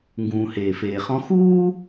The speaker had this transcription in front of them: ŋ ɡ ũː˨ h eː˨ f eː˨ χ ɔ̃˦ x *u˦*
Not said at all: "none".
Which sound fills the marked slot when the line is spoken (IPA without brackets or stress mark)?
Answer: uː˦